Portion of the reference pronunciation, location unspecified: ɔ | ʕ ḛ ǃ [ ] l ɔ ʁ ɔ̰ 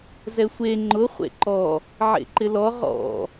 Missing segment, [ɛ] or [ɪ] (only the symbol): ɪ